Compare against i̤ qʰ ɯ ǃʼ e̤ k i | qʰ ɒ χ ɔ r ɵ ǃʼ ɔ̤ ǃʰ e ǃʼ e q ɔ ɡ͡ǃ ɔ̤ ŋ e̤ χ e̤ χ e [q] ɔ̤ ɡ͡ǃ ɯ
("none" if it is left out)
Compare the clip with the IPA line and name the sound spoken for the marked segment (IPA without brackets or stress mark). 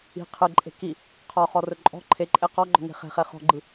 χ